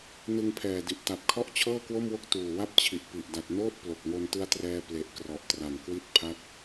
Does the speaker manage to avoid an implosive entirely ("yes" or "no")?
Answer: yes